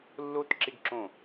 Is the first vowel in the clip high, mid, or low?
mid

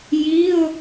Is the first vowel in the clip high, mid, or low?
high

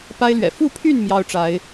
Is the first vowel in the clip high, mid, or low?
low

